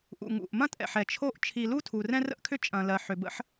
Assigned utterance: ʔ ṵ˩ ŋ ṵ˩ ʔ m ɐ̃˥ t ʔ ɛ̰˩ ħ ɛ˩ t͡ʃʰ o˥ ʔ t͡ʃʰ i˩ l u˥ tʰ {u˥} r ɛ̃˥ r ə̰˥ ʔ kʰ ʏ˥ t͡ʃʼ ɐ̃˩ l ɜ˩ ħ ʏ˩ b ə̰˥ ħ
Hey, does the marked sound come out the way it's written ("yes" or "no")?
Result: no